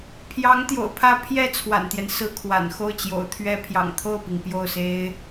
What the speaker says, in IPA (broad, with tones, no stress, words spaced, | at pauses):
pʰjɑ˧˥ŋt̪jo̰˨˩ʊ̯ pʰä˥˧ pʰjɛ˥˩ t͡sʰwa̰˨˩nt̪jɛ˦n sɹ̩˥kʰwa̰˨˩n xo˥˩ʊ̯t͡ɕjo̰˨˩ʊ̯t̪ʰɥɛ˥ pʰjɑ̰˨˩ŋt̪ʰo˥˩ʊ̯pi˩ŋ pjo˥˩ʊ̯se˥ɪ̯